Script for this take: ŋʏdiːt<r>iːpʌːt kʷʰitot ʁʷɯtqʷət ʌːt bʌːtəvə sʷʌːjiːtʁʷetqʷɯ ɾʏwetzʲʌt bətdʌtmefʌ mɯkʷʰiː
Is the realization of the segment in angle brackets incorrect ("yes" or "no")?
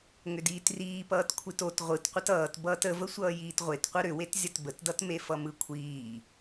no